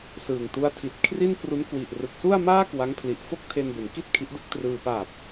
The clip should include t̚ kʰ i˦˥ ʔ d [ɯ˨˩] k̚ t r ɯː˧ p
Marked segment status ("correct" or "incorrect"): incorrect